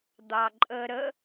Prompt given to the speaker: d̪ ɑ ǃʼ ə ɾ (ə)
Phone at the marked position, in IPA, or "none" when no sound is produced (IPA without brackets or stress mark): ə